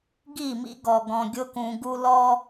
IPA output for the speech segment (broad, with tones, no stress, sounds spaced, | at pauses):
ɡ i˦˨ m ḭ˦ ɡ ɔ˨ ɡ ɔ̃˨ ɡʲ ʊ˦ k ũ˨ ɡ u˦ l ɔ˦